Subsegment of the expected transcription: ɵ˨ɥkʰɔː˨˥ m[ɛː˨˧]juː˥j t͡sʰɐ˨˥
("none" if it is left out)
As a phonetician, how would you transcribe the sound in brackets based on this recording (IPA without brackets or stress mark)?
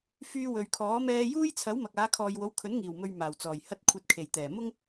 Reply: ɛː˧